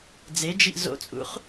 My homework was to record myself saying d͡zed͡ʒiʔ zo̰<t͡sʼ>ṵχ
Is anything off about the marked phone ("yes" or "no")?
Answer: no